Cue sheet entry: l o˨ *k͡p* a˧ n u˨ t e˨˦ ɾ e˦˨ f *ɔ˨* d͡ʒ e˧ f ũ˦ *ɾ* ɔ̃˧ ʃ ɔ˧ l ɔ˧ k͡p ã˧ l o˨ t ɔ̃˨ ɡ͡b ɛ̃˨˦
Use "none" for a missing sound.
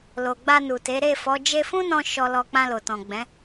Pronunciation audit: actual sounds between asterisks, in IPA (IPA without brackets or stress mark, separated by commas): ɡ͡b, ɔ˨˦, n